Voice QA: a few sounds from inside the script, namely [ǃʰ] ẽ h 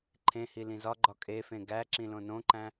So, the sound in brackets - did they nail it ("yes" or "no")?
yes